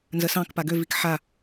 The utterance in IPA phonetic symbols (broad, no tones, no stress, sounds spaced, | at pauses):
n z ə s ɑ̃ k p a ɡ ø v i k ħ a